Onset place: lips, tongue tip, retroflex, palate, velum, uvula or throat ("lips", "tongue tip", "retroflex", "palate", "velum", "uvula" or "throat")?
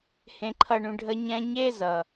throat